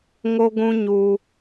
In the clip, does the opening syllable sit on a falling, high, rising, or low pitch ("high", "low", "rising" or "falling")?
high